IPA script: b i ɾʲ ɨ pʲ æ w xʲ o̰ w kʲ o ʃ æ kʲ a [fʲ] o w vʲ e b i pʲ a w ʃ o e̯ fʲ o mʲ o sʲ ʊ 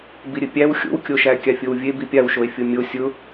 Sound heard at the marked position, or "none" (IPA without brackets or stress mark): fʲ